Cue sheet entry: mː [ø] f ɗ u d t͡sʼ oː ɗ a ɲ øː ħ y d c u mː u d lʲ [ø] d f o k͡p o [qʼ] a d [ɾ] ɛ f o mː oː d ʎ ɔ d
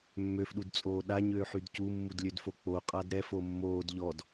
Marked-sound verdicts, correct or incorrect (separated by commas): correct, correct, correct, correct